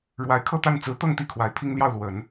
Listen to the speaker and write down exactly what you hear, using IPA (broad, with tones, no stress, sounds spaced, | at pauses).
ɻ w a˧˥ ɪ̯ kʰ ɤ˥˧ t̪ a˥˩ n t͡s ɹ̩˧˥ t̪ ɤ˥˧ ŋ t̪ i˥˩ kʰ w a˧˥ ɪ̯ pʰ i˥ ŋ l j ɑ˥˩ ʊ̯ l w ə˨˩˦ n